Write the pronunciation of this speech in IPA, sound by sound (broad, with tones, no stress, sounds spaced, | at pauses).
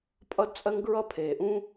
pʼ ʌ˦ d t͡sʼ ɜ˦ ŋ ɡ ɹ ʌ˦ pʰ eː˨ ʔ ũː˦